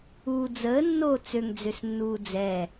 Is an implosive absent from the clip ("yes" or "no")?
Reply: yes